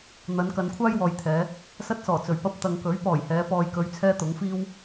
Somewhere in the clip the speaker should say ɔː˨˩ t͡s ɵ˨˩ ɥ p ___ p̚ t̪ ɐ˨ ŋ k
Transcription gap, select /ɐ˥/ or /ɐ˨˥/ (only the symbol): ɐ˥